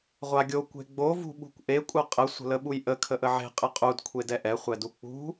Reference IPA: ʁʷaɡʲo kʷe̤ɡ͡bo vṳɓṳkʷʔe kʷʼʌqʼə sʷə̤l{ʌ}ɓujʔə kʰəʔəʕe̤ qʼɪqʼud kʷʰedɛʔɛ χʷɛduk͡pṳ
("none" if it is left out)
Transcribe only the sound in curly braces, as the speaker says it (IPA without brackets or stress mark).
ə